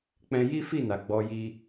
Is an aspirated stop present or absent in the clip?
absent